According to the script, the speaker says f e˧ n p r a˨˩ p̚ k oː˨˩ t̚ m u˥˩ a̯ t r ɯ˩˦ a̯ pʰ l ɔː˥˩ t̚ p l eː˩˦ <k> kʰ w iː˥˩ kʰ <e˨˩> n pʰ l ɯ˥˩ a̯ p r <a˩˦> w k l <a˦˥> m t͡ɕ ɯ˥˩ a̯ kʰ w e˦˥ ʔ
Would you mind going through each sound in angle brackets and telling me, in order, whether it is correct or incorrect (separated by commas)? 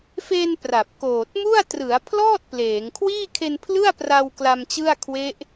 incorrect, incorrect, incorrect, incorrect